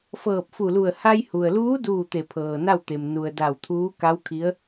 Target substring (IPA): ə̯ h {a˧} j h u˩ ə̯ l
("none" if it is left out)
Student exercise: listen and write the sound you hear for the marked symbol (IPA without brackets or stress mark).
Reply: a˧